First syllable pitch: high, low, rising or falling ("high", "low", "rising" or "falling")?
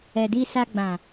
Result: low